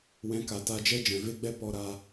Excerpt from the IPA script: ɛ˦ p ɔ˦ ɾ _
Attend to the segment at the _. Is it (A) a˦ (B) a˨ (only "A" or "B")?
A